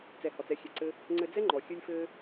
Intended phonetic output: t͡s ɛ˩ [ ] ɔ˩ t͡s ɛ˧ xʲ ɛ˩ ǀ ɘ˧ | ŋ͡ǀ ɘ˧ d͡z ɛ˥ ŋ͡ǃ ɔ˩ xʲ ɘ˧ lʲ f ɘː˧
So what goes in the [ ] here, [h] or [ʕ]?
h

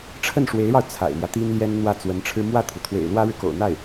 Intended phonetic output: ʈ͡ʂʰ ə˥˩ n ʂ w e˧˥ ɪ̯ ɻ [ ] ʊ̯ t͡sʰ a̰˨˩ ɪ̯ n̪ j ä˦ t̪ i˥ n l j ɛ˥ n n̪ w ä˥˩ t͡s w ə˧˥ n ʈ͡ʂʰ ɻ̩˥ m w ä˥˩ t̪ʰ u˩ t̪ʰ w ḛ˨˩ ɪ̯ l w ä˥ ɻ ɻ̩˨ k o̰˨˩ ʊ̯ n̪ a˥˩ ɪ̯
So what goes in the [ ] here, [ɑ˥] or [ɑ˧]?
ɑ˧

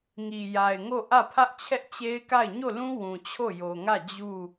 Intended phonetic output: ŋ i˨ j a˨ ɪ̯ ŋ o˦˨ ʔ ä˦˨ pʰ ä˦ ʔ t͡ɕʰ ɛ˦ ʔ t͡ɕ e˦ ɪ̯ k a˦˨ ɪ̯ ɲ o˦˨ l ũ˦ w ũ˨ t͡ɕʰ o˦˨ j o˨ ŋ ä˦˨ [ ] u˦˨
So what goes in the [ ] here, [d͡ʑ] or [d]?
d͡ʑ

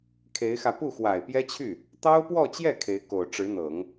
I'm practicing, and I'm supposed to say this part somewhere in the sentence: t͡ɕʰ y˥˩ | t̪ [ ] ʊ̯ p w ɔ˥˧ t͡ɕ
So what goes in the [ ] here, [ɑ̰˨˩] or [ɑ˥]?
ɑ˥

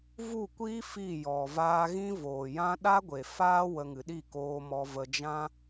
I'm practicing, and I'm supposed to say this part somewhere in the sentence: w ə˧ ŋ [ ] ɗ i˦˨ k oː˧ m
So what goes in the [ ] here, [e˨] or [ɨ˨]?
ɨ˨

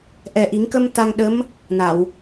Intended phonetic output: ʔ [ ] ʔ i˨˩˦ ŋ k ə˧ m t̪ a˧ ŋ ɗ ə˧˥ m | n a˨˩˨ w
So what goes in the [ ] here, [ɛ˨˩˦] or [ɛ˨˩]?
ɛ˨˩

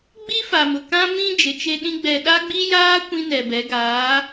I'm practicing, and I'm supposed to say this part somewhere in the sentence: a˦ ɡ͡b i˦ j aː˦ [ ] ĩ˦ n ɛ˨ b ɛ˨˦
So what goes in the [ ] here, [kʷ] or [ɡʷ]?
kʷ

